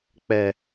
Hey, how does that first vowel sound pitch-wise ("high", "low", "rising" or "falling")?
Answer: high